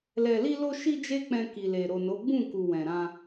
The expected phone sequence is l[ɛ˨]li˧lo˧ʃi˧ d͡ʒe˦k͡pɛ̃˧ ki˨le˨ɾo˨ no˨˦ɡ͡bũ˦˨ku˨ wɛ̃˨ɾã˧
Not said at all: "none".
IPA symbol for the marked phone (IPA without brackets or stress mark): ɛ˨